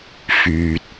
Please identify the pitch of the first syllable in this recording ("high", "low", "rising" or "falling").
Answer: low